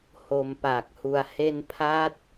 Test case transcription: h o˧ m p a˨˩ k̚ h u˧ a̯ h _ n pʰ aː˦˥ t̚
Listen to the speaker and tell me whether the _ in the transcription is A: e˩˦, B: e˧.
B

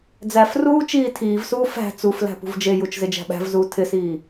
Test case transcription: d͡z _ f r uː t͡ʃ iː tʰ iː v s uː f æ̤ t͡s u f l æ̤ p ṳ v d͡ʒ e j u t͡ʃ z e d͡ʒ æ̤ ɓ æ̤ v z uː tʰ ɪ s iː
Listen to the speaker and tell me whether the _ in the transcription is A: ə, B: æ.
B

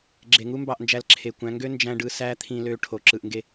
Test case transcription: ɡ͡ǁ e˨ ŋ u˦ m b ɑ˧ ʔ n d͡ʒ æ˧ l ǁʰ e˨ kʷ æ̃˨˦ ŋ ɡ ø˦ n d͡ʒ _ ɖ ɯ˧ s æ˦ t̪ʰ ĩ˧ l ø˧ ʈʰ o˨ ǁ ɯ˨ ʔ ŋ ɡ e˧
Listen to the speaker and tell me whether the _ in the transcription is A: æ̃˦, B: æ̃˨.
A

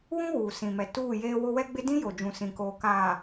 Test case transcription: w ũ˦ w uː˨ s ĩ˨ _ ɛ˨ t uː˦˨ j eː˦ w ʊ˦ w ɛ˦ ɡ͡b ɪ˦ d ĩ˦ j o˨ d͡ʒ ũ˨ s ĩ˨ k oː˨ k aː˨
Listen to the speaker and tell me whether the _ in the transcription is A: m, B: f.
A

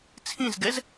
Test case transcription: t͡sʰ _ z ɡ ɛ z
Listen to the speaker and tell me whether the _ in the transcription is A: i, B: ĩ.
B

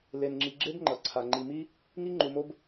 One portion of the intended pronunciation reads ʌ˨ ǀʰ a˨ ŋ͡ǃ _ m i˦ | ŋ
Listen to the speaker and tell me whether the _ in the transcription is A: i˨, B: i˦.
A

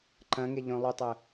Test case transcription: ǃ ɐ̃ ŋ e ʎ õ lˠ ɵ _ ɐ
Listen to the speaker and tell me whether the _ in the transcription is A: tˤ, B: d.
A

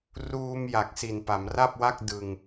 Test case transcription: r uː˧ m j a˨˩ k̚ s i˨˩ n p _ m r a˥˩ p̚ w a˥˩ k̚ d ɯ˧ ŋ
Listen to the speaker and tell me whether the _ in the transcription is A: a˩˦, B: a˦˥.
A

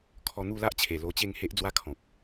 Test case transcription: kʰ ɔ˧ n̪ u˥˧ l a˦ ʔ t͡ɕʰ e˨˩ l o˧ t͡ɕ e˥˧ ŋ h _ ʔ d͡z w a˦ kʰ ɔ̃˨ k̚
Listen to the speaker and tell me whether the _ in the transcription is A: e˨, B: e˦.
B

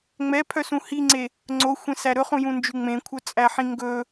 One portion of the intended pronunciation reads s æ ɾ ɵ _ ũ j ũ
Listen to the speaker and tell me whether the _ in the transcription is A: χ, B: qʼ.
A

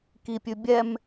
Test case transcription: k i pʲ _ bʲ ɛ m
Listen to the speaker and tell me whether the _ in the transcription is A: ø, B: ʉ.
B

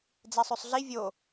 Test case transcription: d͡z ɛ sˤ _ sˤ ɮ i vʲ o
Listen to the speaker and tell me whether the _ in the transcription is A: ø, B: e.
A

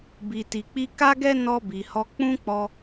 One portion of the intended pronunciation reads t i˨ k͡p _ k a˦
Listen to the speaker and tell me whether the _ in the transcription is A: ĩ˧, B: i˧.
B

